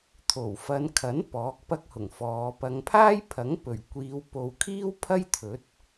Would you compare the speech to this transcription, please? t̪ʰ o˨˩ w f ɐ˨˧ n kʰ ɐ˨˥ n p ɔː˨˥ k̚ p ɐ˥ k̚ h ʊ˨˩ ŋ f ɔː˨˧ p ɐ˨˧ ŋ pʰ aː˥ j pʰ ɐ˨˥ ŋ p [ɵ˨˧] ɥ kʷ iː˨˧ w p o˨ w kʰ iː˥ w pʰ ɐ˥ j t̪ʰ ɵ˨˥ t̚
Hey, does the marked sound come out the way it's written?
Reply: no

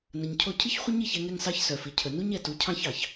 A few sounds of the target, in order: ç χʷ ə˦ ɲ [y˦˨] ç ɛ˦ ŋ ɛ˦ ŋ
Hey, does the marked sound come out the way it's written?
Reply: no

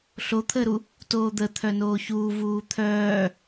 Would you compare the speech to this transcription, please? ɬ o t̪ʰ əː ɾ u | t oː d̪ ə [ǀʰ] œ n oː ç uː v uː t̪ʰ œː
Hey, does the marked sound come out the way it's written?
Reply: no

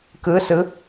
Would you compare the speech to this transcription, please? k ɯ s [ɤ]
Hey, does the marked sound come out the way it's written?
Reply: no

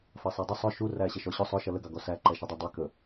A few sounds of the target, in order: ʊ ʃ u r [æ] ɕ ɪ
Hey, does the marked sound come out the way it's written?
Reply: yes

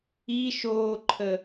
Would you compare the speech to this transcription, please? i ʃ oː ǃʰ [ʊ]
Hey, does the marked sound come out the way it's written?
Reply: no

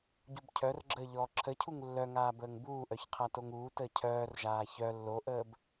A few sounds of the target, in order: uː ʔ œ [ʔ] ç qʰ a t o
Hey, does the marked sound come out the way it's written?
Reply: no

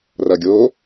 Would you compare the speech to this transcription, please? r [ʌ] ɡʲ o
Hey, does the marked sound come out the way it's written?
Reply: yes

